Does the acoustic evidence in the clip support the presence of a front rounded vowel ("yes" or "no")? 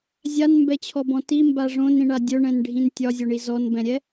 no